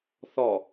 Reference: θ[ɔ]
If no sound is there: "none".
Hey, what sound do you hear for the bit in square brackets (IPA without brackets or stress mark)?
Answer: ɔ